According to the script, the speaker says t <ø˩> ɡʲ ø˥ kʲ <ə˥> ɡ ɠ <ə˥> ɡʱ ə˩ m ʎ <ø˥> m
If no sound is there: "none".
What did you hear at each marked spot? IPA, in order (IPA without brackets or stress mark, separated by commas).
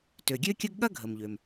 ø˩, ə˥, ɐ˥, ø˩